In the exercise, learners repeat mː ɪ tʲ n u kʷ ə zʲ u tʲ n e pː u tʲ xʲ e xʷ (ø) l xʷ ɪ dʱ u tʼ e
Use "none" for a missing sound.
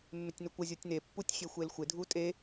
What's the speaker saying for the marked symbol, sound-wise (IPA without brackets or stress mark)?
e